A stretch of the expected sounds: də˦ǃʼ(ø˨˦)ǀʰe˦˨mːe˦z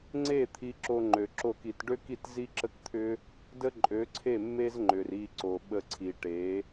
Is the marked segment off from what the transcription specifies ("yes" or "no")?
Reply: no